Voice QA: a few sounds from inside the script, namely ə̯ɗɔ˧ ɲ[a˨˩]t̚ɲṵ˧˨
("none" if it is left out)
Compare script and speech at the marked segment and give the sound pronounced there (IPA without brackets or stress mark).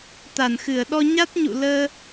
a˦˥